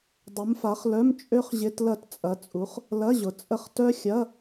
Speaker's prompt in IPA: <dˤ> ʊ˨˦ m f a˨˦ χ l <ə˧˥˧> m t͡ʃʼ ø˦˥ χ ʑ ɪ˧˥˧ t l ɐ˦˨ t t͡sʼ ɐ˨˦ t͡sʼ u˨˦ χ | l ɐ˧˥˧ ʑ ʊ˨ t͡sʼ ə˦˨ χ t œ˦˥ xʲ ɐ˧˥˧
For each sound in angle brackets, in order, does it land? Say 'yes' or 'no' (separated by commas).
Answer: yes, no